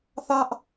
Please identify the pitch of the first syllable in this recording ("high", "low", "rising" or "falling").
high